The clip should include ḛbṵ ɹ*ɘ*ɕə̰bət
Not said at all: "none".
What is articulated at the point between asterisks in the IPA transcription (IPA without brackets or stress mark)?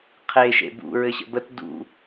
ɘ